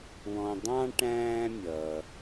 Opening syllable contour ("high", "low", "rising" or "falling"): low